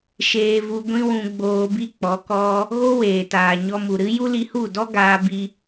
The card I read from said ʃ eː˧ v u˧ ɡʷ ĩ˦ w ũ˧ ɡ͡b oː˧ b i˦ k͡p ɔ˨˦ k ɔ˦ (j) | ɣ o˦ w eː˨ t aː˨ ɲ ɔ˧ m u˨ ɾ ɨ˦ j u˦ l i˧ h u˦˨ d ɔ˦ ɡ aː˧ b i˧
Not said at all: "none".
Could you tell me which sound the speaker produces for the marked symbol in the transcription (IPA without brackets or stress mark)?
none